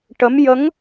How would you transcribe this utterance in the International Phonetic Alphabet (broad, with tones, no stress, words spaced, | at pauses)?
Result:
ʈə˧˥m jə˧˥ŋ